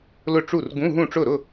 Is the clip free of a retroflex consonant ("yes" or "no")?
no